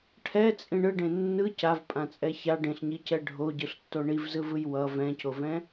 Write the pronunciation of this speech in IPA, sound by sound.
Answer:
ʈʰɛt͡sʼĩ ɳɯɖẽ nːɯ cavpʼãt͡sʼɛ ça ɖẽɬɲicɛ ɖʱoɟɯɬtːo ɳivzɯvɯj wʌ vɛ̃covɛ̃

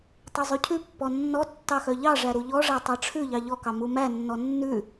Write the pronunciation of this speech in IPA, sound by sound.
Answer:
tˤʉzˤʉcʰʉpːɔ nːɔ tːɑxœʎɑʐæ ɾuʎɔʐæ tˤɑʈ͡ʂʰʉʎɑ ʎɔkɑ mumænːɔ nːʉ

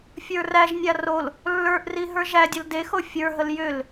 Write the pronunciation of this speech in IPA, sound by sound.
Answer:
fʲə˞ræʒnʲa rol | lːə˞ʔri ɦə˞ʒædʲəl dexo fʲə˞ɦəl jʏl

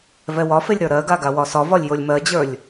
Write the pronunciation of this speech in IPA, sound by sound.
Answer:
vɛwɒfelʲ ɾə˞ɾɜɡa ɡawɒsɒvɒlʲ jolʲmɜd͡ʑə˞lʲ

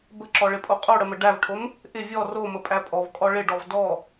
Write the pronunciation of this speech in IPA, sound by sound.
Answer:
bəǁɔɭɪpʼo qʼoɽəmə ɖævʈʰom | ʔɪ vʲɔ roməpʼæ pʼɔvkʼɔ ɭɪɖɔv dɔ

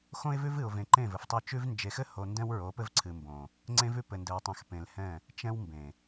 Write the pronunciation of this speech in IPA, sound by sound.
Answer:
xõ˦ɪ̯vʉ˦vɨ˨ʊ̯ vẽ˨ǃẽ˦˨vɘ˨ftˤo˦˨ t͡ʃʉ˦v nd͡ʒe˨xɘ˦ho˨ ndɛ̃˦wɹo˨˦pɘ˦vǀʰɨ˨ mbõ˨ | ŋ͡ǀẽ˦vʉ˦ pɘ˨ndɘ˨w tˤɛ̃˨xpẽ˨lhɛ̃˦˨ | t͡ʃɛ̃˦wmbẽ˨

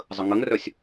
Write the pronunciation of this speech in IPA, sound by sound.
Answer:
zˤəŋəŋrœsʲ

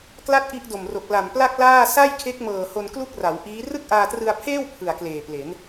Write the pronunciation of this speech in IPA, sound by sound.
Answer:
kla˥˩t̚ʔi˦˥ʔdo˨˩mro˨˩k̚ la˨˩mpla˥˩k̚laː˥˩ sa˥˩jkʰe˦˥k̚mɤː˨˩ ho˧nklu˥˩k̚ra˩˦w ʔiː˦˥ rɯ˥˩k̚ʔaː˧trɯ˧a̯pʰeː˥˩w pʰɯ˨˩a̯kleː˨˩ple˩˦n

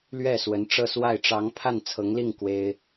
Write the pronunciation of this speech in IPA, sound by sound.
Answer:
lɥɛ˥˩ swə˧˥nʈ͡ʂɤ˥˧swa˥˩ɪ̯ ʈ͡ʂɑ˧˥ŋ pʰa˥˩n t͡sʰɤ˧˥ŋli˥˩ŋ kwe˥ɪ̯

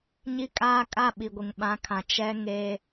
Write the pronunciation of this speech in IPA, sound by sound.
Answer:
ɲi˨kʼaː˨kʼa˨ ɓi˨ɡʷɪ˨ŋɓã˨˦kʰã˨ t͡ʃɛ˦ŋe˦

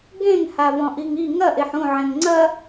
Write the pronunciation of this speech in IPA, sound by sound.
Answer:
ɡẽŋ havɔ̃ʔiŋi ŋɐ ʔeħũ ʕẽŋŋ͡ǀɐ

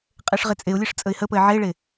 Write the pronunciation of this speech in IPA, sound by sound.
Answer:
qʼeʂʁet͡sʼeʊ̯lʲeʂ t͡sʼəɪ̯həpəɪ̯ ʕeɭe

